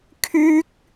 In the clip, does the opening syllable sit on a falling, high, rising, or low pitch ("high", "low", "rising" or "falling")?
high